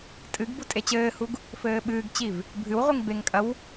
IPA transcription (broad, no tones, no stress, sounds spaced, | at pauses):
tʼ ɨ ɡ b u tʼ e t͡ɕ ɘː h u ɡ | f ɘː ɓ ɨː ɡ t͡ɕ i v | bʱ ɨ w ʁʷ i ŋ b e ŋ kʼ ɐ w